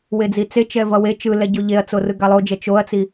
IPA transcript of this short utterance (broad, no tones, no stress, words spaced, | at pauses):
wed͡zit͡se t͡ʃɛvʌwe t͡ʃɯlɛɟo ʎeɐ̯t͡so rɯɡalˠod͡ʒɛ t͡ʃoɐ̯t͡si